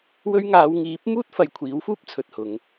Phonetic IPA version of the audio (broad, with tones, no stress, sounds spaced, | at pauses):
w ɵ˧ ɥ ŋ aː˨˧ w ŋ iː˨˥ p̚ m uː˥ t̚ f ɐ˨˧ j kʷʰ iː˨˥ w f uː˥ p̚ t͡sʰ ɵ˨ t̚ h ʊ˨˧ ŋ